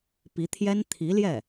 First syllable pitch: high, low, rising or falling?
rising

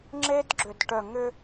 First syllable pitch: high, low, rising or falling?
high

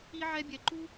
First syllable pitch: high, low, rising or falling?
high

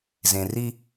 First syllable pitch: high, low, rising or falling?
low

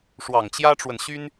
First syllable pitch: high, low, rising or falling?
low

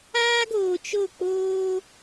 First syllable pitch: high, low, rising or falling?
high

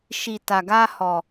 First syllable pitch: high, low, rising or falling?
low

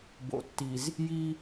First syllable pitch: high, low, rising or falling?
low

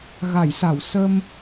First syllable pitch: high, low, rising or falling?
low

